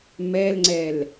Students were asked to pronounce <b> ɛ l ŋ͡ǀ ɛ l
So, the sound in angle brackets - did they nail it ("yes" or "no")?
no